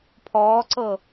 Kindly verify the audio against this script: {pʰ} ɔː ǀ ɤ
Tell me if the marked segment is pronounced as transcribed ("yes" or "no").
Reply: yes